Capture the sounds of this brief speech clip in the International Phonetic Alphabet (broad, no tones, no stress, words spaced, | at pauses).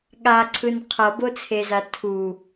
ɠaǀʰɯn qʰʌbot͡sʰeza tʰu